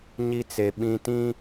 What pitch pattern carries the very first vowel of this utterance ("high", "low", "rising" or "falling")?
high